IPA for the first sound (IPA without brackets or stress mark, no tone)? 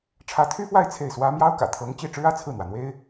ʈ͡ʂʰ